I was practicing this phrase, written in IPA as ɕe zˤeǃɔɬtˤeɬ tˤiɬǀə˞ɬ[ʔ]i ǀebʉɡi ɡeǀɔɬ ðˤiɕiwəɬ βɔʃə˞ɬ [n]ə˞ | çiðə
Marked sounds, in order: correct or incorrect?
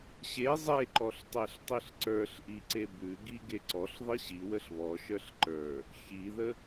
correct, incorrect: ǃ

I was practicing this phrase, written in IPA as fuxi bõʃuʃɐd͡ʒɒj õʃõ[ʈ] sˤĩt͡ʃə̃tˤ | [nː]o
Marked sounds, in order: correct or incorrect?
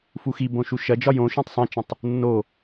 incorrect: tˤ, correct

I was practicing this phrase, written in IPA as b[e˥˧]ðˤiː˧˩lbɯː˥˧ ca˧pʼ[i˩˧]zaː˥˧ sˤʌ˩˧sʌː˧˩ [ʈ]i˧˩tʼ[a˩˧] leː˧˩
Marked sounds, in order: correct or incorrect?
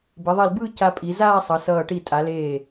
incorrect: e˩˧, correct, correct, correct

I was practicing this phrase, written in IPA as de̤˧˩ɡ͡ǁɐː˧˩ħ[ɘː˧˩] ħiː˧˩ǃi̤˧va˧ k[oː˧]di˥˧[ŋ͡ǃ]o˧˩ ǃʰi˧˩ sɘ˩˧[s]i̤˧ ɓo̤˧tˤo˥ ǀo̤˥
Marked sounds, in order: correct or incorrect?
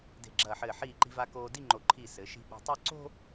correct, correct, correct, incorrect: ʃ

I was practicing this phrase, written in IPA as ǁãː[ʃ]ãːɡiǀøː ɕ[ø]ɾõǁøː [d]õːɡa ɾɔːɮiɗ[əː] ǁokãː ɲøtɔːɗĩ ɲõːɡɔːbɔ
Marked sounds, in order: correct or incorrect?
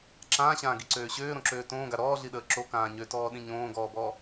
incorrect: ɕ, incorrect: øː, incorrect: t, correct

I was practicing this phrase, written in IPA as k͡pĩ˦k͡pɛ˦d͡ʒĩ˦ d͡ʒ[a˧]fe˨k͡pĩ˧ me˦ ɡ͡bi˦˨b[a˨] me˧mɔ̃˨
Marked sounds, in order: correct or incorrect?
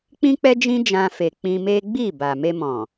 incorrect: ã˧, correct

